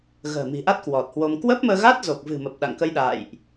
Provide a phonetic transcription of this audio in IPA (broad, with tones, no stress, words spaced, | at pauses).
ɣə̤ː˨˩mi̤˨˩ʔa˦˥t̚ kwɔ˨˩t̚hwo˧m kwə˦˥p̚məː˧ ɣa˦˥t̚zo˨˩k̚vɨ̤˨˩mə˨˩p̚ ɗa̰˧˨ŋkə˧jɗa̰ː˧˨jʔ